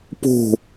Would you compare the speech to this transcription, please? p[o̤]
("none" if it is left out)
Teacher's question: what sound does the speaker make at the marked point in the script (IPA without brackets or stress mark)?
o̤